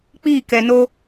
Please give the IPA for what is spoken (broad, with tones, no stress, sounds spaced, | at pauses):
k͡p iː˦˨ k ɛ˨ n o˦